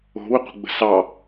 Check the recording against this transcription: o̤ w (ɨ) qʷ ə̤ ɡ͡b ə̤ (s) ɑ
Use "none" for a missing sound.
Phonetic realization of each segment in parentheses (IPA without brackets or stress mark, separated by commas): ʏ, s